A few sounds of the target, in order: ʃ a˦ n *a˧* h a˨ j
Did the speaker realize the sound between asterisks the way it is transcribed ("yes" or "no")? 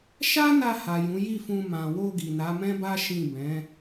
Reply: yes